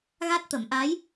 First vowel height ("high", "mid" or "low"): low